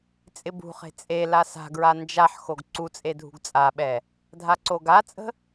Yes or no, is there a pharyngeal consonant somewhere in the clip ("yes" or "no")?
yes